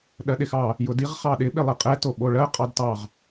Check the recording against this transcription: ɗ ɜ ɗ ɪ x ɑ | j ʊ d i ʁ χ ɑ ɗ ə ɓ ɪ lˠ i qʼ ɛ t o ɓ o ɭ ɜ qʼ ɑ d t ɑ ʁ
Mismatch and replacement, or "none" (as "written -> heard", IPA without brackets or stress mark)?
ə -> ɪ